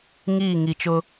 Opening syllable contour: falling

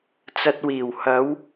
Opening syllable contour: low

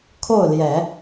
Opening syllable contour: falling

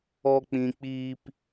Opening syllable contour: low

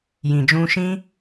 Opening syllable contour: low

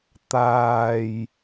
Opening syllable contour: low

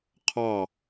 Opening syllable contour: falling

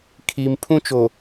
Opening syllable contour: high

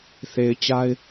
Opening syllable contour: low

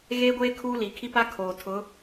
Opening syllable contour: high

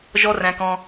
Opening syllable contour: high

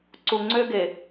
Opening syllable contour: low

